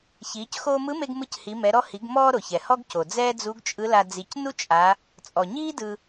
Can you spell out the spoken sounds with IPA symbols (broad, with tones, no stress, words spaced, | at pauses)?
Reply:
çiː˩˧cxoː˧mɯ˧˥me˧ɡ mɯ˧chi˩˧mɛ˩˧ɾɔ˧ hi˩˧ɡmɔː˧ɾo˩ çɛ˩ hɔ˥ɡco˩ d͡zɛː˥d͡zu˧˥ɡt͡ʃʼɯ˧˥la˧ d͡zi˩˧cnu˥t͡ʃʼa˩˧ | t͡sʼɔ˩ɲiː˥ dɯ˧